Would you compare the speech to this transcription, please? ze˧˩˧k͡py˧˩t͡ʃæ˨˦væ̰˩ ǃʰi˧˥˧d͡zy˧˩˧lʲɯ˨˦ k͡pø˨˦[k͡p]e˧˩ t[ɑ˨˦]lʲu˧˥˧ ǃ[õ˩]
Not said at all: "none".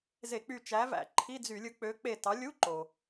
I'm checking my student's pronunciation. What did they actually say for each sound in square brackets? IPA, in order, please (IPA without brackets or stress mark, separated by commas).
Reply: k͡p, ɑ˨˦, o˩